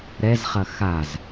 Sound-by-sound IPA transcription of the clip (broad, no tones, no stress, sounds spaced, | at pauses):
ɾ ɛ z χ ɐ x a z